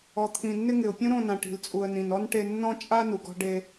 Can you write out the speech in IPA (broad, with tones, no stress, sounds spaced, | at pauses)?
ɔ˨ t̪ʰ ĩ˨ nː ɪ˦ ŋ ɪ˨ ʊ̯ pʲ ũ˦ ɾ õ˦˨ n ã˨ ʈ i̤˨ l t͡sʼ u˨ ə̯ n ĩ˨ n ɔ˦ n ʈ e˦ nː ɔ̃˦ t͡ʃʼ a˦ n u˨ ɡ ɔ̤˦ ɖ e˦